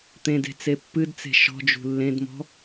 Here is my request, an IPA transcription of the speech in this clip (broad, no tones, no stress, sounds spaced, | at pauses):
t̪ ẽ d e̤ t͡s e pː ɨ d t͡s e̤ ʃ ɔ̤ d͡ʒ ṳ lː ẽ d m ɔ̤